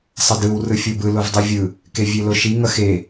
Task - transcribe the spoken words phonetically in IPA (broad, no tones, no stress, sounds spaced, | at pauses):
sˤ ʌ d ɯ w r ɯ fʲ o b ɯ l o v dˤ ɯ vʲ ɯ | k e vʲ e l o ʃ i ŋ ʌ x e